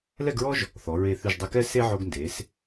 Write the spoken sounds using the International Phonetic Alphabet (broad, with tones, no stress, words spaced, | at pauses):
lɛ˥˧ɡɹɔ˥ʒ | θɔ˩˧ ɹe˧˩θʉ˧˩ʒdˤɛ˧kɛ˥ se˥ ʕo˧ɡnde˩˧s